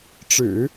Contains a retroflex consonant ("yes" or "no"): yes